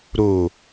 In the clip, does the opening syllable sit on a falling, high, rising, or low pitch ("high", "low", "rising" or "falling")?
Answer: low